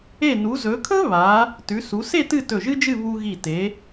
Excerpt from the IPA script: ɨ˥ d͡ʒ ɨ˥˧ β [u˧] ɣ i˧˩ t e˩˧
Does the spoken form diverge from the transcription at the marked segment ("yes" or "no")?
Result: no